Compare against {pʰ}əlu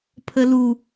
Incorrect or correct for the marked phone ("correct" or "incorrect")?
correct